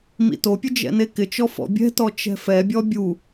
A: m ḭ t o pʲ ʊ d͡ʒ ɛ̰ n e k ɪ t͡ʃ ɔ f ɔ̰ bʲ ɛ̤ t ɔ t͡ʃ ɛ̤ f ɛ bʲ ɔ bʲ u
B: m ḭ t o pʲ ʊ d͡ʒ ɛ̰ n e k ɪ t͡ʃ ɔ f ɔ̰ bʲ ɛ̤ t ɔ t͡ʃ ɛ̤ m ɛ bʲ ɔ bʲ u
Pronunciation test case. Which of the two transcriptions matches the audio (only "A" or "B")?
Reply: A